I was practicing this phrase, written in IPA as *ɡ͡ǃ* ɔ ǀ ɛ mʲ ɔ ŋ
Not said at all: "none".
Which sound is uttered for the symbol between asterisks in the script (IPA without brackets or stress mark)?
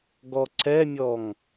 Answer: ɡ